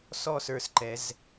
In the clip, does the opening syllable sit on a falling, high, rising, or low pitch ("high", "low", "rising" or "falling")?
falling